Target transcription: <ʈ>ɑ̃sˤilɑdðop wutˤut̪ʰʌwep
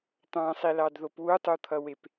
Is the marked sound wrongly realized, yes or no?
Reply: yes